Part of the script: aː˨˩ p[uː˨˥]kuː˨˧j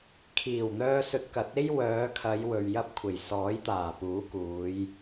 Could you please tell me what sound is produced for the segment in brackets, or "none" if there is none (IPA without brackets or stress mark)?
uː˨˥